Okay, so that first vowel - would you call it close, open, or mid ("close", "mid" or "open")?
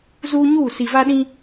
close